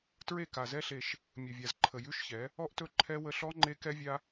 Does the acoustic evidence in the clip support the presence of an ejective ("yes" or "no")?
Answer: no